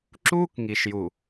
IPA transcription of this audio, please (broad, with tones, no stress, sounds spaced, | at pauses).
ǁ uː˦ k ŋ i˨ ʃ j u˨